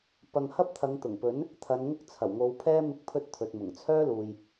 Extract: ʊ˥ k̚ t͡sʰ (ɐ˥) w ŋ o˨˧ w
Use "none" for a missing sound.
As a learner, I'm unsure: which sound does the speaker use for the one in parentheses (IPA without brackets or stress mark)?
ɐ˨˩